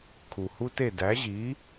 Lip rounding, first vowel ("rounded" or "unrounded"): rounded